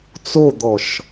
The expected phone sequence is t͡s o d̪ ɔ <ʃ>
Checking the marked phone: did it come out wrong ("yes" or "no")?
no